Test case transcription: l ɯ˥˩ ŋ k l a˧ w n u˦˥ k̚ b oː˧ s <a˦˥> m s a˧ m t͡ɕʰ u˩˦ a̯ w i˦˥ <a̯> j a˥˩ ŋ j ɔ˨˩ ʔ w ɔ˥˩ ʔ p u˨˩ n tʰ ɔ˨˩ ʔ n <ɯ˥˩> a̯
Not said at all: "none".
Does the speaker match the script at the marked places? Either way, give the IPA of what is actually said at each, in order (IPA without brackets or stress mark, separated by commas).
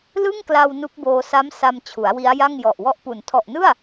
a˦˥, a̯, ɯ˥˩